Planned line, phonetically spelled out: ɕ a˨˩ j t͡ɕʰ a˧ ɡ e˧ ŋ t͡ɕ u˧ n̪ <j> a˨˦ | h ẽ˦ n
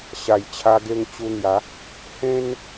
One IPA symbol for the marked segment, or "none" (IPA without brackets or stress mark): j